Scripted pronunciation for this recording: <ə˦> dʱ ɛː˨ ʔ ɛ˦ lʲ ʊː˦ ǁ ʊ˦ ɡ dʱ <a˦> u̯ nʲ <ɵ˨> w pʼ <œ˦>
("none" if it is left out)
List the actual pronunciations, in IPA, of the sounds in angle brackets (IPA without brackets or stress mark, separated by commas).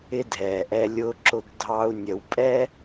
ɪ˦, ɑ˦, ə˨, ɛ˦